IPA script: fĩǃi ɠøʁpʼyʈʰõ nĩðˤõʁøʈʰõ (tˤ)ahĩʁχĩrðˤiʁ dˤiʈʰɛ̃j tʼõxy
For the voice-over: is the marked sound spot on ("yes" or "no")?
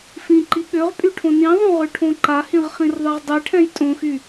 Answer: no